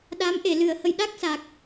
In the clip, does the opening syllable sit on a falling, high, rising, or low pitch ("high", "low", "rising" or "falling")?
rising